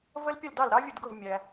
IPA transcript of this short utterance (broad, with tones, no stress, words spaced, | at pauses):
və˦˥l pʲə˥˩l dɑ˥˩lɾɑ˦˥vʲə˥˩dɡʊ˥˩v mʲæ˨